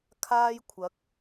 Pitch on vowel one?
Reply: high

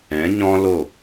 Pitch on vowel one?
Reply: rising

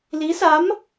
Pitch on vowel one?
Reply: rising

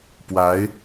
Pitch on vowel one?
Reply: rising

